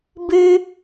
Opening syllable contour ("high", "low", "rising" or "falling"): high